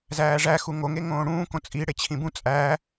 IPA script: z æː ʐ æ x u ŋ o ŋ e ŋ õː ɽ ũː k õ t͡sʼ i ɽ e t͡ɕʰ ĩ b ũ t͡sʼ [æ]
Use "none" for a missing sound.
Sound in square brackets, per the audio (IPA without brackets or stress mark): æː